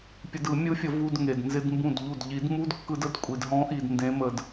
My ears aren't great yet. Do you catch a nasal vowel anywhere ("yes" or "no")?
yes